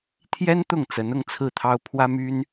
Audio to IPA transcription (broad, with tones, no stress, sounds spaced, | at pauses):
t̪ʰ j ɛ˥ n t̪ ʊ˥˩ ŋ t͡s ə˧˥ n ʊ˥˧ ŋ t͡sʰ ɹ̩˥˩ t̪ʰ ɑ˥ ʊ̯ pʰ w ä˥ m y˥ n